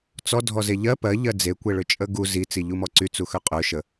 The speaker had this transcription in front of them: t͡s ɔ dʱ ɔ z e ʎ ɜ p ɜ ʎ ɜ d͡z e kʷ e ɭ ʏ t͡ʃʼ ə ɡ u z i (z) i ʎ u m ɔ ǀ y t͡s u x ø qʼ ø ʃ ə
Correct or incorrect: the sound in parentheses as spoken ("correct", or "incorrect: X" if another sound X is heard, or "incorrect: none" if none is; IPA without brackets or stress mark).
incorrect: t͡s